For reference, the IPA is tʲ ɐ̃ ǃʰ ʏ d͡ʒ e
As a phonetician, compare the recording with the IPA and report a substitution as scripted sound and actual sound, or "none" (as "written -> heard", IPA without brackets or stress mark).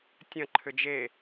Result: none